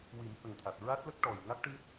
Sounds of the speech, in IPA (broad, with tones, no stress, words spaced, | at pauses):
wi˨˩˦mhə˨˩ŋt̪ʰa˨˩t̚ ɹa˦˥t̚lə˦˥k̚ ʈɔ˨˩j ŋa˦˥k̚ʈɨ˦˥t̚